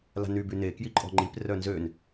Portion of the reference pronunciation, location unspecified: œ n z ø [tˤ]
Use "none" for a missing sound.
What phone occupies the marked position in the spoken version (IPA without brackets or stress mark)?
n